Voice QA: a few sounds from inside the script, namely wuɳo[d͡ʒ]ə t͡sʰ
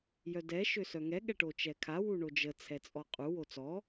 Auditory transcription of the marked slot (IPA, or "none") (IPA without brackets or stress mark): d͡ʒ